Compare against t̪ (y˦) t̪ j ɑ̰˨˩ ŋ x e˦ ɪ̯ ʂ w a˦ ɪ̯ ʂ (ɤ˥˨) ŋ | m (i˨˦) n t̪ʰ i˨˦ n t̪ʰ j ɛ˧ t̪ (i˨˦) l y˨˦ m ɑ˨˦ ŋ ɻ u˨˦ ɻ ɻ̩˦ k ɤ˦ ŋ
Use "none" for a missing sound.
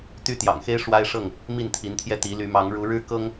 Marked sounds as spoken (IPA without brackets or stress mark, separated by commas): y˦, ɤ˥˨, i˥˨, i˨˦